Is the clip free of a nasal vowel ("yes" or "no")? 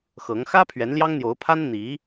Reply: yes